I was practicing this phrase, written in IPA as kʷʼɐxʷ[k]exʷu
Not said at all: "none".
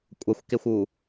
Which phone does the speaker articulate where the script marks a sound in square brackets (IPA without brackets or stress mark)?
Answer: k